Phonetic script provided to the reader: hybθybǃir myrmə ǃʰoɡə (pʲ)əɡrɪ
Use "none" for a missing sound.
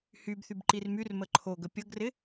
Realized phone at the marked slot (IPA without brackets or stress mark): pʲ